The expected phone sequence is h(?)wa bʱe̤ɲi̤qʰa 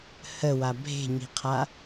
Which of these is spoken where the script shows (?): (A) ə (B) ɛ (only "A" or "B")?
A